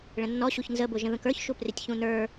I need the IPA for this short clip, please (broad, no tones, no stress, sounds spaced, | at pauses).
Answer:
ɭ ə̃ nː ɔ ɕ u ç n z ə b ʊ ʒ ə̃ ð ə̃ k ə˞ ç ʃ u p r ɪ tʲ ç ũ n ə˞